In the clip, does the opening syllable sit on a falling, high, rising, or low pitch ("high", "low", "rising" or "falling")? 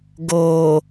low